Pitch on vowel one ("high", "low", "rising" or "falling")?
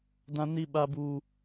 high